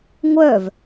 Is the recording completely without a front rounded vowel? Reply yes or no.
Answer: no